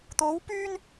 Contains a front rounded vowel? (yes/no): yes